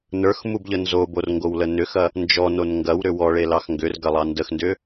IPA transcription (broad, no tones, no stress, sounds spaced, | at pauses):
n ə˞ x m u b ʎ ə n z o b o r ŋ ɡ o w l ə n ʏ x ɐ | n d͡ʒ ɔ n o n ŋ ɡ ɐ w ɾ ʏ w ɔ ɭ e l ɑ x ŋ ɡ ʏ r ɡ ɐ lˠ ɑ n d ə x n d ʏ